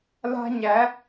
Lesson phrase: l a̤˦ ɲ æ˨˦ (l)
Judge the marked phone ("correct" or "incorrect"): incorrect